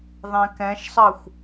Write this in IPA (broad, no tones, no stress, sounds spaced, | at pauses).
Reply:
ðˤ ɛ̃ k ɛ̃ ʃ sˤ ɑ xʷ